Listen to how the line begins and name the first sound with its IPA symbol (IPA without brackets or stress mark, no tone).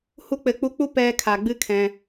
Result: h